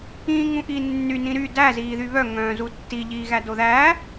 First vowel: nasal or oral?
nasal